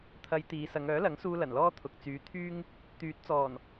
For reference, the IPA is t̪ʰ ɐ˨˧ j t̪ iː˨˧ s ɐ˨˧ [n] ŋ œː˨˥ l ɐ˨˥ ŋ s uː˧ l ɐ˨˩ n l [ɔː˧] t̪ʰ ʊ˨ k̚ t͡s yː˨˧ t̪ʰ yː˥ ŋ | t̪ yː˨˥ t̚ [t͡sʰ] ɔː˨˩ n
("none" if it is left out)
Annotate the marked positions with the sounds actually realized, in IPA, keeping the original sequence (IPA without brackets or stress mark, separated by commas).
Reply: none, ɔː˥, t͡s